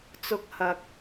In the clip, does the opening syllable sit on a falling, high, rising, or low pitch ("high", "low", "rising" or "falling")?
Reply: high